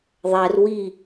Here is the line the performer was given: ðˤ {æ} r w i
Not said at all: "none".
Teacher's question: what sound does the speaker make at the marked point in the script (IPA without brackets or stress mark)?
æ